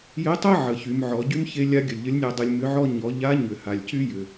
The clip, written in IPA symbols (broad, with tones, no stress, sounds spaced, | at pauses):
j ɘ˧˥ tˤ ə˥ ʕ ə˩˧ ç y˩˧ m ʕ ɔ˩˧ ɟ y˥ m ç e˧˥ lʲ a˧˥ ɡʲ ə˩ lʲ ʎ ə˧˥ lʲ nʲ a˧ dˤ ɘ˧ lʲ m ʏ˧˥ ʕ ɔ˥ ɲ ɔ˩˧ ʎ a˧˥ ɲ ʏ˩ h a˩ lʲ c y˥ j ʏ˩